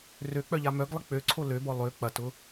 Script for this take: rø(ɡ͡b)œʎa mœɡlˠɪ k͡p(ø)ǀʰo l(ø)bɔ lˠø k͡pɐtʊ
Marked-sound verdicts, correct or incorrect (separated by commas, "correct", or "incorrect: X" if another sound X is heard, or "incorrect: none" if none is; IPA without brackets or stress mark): incorrect: k͡p, correct, correct